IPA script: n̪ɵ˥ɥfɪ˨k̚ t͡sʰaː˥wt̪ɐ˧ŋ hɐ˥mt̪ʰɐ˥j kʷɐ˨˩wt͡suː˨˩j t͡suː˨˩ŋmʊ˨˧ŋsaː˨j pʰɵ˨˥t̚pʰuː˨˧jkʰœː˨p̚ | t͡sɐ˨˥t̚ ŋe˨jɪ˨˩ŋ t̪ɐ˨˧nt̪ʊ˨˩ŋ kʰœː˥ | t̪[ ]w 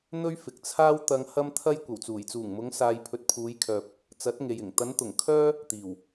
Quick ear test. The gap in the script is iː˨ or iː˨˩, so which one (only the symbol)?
iː˨˩